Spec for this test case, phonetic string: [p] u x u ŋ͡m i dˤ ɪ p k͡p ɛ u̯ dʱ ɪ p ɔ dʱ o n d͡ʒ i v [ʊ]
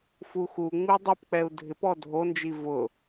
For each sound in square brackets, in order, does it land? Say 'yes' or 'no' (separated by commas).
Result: no, yes